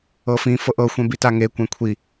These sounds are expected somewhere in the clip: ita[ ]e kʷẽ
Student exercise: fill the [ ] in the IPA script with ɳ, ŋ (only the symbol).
ŋ